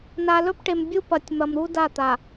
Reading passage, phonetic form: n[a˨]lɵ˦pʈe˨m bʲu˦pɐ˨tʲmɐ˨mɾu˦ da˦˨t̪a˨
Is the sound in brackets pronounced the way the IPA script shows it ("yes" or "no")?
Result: yes